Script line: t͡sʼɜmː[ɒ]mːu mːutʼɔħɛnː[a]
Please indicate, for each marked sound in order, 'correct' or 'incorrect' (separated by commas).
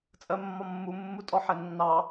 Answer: correct, incorrect